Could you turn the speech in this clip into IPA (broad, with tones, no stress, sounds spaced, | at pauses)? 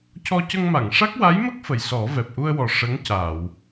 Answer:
c ɔ˧ c ə˧ ŋ m a˨˩˨ ŋ ʂ a˦˥ k̚ w a˧˥ j m ə˦˥ k̚ f ə˨˩ j s ɔ˨˩˦ v ɛ˨˩ p̚ ʔ u˧ ə̯ w ɔ˨˩ ʂ ə˧˥ ŋ c a˨˩˨ w